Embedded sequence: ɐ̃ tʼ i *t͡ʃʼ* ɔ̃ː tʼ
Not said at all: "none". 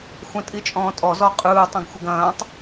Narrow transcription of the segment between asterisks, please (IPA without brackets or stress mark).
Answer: t͡ʃʼ